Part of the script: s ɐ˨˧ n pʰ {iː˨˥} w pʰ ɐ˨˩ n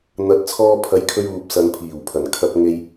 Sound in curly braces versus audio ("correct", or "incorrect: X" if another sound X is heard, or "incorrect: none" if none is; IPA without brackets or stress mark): incorrect: iː˨˩